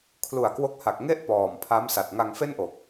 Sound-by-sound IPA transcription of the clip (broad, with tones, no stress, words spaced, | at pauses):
kʰlu˨˩a̯kwo˦˥k̚ha˨˩k̚ ŋe˥˩ʔ pɔː˨˩mpʰa˦˥m sa˨˩t̚ŋa˧ŋfe˥˩nʔo˨˩k̚